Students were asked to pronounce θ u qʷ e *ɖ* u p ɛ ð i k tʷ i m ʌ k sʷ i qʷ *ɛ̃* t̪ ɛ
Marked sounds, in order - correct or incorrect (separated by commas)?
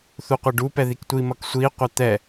correct, incorrect